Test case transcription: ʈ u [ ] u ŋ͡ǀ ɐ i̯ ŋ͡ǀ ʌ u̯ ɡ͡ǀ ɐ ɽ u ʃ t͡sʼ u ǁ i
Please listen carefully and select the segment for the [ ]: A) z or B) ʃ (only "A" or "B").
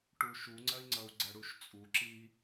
B